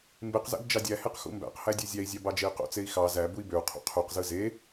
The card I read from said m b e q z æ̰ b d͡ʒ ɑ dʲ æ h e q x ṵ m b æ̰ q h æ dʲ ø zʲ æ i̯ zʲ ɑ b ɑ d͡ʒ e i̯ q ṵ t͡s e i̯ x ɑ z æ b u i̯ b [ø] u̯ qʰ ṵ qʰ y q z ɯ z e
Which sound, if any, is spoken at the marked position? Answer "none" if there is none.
ø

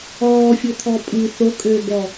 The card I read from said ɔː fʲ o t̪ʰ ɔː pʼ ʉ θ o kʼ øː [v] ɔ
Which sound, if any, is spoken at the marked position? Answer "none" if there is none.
b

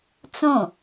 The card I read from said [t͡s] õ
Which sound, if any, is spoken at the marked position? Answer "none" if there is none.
t͡s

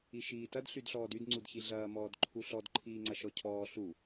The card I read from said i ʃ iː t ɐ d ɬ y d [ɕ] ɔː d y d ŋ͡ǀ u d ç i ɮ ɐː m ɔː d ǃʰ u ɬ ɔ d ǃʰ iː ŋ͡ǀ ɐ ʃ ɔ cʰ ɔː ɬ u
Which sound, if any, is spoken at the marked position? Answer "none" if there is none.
ɬ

